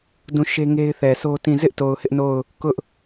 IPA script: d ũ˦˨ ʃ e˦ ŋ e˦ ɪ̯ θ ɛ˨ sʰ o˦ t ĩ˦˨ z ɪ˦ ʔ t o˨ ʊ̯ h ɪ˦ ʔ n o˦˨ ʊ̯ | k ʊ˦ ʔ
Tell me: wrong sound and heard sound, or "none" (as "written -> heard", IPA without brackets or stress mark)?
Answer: none